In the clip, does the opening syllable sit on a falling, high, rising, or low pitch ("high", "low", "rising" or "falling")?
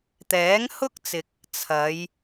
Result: rising